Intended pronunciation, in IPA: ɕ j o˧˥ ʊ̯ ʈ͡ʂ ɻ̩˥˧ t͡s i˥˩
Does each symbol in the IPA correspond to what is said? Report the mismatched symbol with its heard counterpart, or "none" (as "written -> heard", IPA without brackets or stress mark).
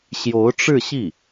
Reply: t͡s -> ɕ